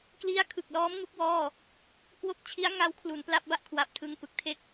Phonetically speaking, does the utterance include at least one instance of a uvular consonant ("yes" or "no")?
no